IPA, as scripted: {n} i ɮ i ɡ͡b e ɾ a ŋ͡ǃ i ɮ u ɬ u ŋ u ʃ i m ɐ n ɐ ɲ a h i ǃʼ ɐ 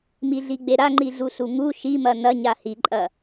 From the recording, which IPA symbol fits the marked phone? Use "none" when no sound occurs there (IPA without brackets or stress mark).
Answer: m